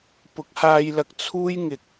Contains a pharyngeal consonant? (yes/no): no